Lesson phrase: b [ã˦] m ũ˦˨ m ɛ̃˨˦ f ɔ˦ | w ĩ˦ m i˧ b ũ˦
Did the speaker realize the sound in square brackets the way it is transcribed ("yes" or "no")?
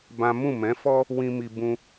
yes